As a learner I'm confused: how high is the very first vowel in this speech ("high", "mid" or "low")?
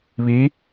high